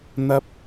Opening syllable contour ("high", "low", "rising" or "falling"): high